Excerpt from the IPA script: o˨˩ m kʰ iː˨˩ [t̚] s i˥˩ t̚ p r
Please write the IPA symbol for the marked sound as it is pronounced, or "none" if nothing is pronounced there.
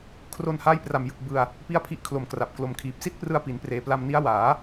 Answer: p̚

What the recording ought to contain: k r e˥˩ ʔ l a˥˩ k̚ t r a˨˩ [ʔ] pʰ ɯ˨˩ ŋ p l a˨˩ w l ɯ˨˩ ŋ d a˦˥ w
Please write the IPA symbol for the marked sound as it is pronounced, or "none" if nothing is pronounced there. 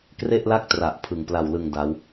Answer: ʔ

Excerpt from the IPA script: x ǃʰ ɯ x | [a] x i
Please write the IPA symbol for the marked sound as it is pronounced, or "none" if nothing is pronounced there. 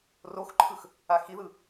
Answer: a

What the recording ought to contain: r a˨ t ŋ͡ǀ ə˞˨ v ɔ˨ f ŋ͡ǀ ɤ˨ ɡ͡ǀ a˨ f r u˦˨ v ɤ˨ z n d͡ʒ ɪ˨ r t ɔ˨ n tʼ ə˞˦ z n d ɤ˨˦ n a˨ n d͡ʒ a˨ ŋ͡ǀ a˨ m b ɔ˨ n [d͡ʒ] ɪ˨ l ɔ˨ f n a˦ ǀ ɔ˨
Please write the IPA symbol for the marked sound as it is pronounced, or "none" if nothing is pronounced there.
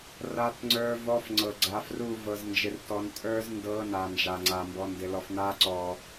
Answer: d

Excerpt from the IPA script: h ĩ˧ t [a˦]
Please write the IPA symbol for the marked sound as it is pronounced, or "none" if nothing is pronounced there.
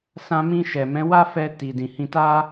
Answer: a˦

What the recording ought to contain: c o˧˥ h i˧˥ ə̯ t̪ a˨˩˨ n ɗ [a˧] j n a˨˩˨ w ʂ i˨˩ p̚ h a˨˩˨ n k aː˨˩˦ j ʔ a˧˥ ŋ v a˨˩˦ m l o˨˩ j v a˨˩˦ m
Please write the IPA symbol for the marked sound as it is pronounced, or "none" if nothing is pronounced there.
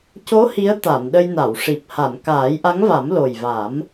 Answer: ə˧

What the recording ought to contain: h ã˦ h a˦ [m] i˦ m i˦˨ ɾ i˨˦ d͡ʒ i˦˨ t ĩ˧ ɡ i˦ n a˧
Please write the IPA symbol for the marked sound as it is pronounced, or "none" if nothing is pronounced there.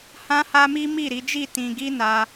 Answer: m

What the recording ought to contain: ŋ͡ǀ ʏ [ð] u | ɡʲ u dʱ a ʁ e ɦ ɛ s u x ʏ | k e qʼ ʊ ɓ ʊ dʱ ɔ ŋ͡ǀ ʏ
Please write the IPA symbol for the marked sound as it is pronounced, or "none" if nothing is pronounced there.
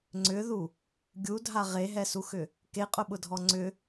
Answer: ð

